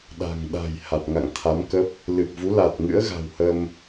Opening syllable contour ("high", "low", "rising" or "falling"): low